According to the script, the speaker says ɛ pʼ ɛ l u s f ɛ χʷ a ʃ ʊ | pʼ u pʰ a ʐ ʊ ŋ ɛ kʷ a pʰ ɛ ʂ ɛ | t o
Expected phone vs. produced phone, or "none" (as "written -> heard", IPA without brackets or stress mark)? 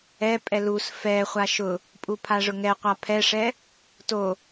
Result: kʷ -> qʷ